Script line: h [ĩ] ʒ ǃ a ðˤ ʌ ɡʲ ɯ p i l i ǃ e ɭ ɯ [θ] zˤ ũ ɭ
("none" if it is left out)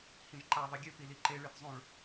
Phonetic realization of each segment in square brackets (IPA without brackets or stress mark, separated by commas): ĩ, θ